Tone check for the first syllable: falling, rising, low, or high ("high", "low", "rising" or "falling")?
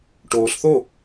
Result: low